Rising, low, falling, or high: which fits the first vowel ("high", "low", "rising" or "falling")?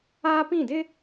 high